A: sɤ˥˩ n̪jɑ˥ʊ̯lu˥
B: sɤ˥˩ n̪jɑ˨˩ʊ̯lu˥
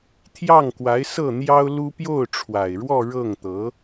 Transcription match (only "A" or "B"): A